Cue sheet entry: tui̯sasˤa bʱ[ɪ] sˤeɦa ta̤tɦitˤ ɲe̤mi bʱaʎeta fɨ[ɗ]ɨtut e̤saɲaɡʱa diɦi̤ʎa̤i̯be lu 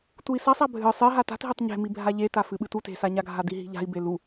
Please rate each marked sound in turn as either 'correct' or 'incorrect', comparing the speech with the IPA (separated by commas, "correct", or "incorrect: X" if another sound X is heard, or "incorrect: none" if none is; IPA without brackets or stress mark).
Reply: incorrect: ɨ, incorrect: ɓ